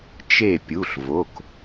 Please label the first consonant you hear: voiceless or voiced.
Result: voiceless